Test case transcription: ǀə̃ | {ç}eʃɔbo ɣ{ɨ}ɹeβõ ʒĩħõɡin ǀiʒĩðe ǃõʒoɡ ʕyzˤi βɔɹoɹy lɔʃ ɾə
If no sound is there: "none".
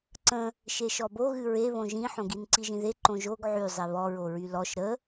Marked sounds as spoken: ʃ, ɨ

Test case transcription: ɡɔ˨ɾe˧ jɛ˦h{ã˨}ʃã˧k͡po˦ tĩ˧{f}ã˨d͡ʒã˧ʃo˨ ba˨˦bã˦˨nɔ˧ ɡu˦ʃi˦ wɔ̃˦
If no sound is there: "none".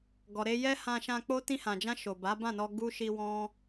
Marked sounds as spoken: ã˧, h

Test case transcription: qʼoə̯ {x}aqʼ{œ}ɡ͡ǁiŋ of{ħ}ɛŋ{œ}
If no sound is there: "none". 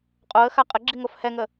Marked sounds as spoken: x, ə, h, ə

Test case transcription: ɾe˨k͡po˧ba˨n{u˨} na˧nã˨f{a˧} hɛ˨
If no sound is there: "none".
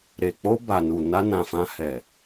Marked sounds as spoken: u˨, ã˧

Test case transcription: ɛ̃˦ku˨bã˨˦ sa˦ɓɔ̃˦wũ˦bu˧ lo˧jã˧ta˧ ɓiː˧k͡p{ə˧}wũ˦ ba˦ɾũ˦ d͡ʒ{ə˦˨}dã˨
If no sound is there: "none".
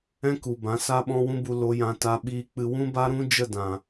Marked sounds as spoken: ɨ˧, ə˦˨

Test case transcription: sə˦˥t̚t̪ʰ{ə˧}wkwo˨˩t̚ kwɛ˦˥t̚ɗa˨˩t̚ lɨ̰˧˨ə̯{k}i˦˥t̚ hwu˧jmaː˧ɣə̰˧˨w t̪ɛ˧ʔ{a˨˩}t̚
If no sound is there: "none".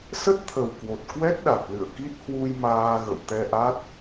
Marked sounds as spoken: ə˨˩, k, a˦˥

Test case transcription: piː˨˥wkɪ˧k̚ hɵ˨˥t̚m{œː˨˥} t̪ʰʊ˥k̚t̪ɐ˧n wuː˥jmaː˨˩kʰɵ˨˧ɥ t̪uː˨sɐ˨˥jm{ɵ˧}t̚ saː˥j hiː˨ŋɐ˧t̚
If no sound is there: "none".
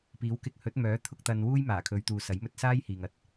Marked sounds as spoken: œː˨˥, ɵ˧

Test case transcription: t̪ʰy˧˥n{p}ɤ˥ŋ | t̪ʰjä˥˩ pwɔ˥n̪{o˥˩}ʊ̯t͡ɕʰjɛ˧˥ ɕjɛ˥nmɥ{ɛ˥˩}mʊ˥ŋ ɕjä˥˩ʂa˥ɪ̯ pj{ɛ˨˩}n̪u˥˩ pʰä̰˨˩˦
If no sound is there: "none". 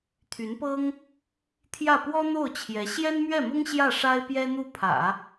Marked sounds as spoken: p, o˥˩, ɛ˥˩, ɛ˥

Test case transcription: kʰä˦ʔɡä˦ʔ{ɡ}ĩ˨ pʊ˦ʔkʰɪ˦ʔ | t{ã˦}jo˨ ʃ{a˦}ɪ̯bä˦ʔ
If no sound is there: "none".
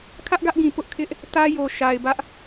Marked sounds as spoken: ɡ, ä˦, a˨

